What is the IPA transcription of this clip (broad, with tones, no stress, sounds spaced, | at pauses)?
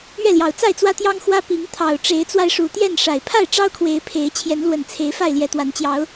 ɥ ɛ˥˨ l j ɑ˨˩ ʊ̯ t͡s a˥˨ ɪ̯ t͡s w ä˦ t̪ j ɑ˦ ŋ x w ä˦ p i˨˦ ŋ t̪ʰ ɑ˨˩ ʊ̯ ʈ͡ʂ e˨˦ ɪ̯ t͡s w a˧ ɪ̯ ʂ u˨˩ t̪ j ɛ˥˨ n ʂ a˨˩ ɪ̯ pʰ a˥˨ ɪ̯ ʈ͡ʂ ɑ˦ ʊ̯ kʰ w e˨˦ ɪ̯ pʰ e˨˦ ɪ̯ t͡ɕʰ j ɛ˨˦ n l w ə˨˩ n t͡sʰ e˨˦ ɪ̯ f a˥˨ ɪ̯ l j ɛ˨˦ t̪ w a˨˦ n t͡ɕ j ɑ˨˦ ʊ̯